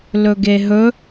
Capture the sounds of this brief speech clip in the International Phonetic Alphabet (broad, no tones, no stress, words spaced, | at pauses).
lɵɡeɦɵ